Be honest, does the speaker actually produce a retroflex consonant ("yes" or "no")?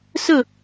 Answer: no